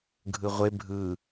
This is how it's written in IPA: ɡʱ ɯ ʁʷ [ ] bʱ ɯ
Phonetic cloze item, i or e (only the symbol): e